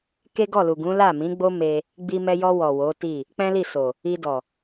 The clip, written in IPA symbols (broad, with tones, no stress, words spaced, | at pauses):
ke˦ɡɔ˦˨lu˨ɡũ˨˦ la˦˨mĩ˨˦ɡ͡bo˦ me˧ | ɡ͡bi˧mɛ˧jɔ˧wɔ˨ wo˨˦ti˦˨ | k͡pɛ̃˦li˦˨so˨ | i˧dɔ˨